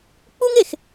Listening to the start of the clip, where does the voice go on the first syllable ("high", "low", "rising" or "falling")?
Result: high